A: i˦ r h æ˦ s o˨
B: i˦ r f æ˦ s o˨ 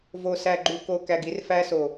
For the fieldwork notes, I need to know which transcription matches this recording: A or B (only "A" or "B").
B